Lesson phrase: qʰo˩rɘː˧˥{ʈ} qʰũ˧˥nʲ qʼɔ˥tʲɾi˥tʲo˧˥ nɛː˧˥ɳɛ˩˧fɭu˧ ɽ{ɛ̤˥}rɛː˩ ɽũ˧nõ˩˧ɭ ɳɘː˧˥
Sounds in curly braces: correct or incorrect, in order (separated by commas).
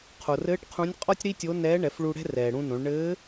correct, correct